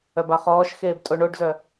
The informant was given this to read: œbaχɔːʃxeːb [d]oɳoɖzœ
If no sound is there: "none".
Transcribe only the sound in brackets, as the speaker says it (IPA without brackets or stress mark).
tʼ